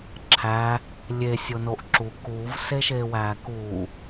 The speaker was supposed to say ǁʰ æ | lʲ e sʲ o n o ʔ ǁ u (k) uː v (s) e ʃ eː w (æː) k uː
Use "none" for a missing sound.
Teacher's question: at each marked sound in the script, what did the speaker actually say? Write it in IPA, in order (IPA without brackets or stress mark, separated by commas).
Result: k, s, æː